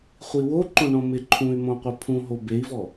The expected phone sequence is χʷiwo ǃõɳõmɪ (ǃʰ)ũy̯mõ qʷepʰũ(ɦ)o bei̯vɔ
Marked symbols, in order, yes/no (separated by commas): yes, yes